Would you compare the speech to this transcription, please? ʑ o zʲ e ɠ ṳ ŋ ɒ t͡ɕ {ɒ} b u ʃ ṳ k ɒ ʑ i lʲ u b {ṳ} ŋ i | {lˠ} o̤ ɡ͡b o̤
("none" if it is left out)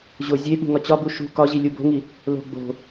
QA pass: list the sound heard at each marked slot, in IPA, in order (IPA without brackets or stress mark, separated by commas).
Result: ɒ, o̤, l